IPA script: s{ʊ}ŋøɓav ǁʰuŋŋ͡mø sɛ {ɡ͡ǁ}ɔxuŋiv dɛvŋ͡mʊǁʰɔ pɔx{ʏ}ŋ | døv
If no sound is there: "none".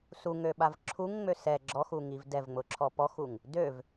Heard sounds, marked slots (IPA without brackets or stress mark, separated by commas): u, ɡ͡ǁ, u